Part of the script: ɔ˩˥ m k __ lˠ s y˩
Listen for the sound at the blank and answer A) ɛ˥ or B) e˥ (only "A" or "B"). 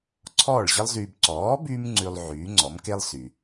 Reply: B